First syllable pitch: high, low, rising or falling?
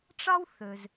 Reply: high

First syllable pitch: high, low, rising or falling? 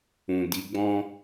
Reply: low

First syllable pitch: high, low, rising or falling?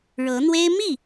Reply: rising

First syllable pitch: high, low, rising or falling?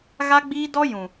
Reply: high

